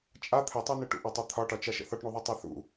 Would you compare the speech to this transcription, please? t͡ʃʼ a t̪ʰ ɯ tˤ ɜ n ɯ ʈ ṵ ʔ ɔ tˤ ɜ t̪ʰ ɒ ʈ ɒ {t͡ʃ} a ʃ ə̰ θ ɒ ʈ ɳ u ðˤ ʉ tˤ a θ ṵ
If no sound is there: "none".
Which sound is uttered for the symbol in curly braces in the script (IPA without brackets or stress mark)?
t͡ʃ